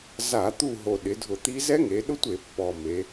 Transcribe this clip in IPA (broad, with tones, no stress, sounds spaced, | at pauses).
z a˧˩˧ t̪ u˦˨ ɦ o˨˩ ɗ ɪ˩˧ dʱ ʊ˧˩˧ t̪ i˦˥ z ɛ˦˥ ŋ e˩˧ ɗ ʊ˦˥ tʷ e˧˩˧ pː ɔ˨˩ m e˩˧